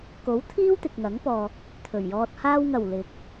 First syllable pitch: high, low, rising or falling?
rising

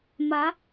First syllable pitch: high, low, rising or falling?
rising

